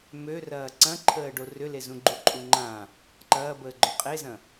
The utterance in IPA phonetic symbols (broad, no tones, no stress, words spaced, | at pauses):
mørɐː ǀɐ̃ǃʰəːɖo rʏlezũɡ͡ǃu ǃʼuŋ͡ǃã | ǃɐːbəːɡ͡ǃœ qʼezɐ̃